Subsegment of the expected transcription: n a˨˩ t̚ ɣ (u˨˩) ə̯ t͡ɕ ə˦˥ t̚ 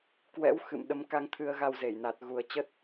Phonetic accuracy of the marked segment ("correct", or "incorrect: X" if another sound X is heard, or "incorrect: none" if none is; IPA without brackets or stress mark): correct